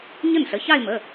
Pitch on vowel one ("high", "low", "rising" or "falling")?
falling